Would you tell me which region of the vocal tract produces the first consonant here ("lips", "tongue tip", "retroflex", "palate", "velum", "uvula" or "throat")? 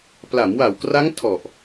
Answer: lips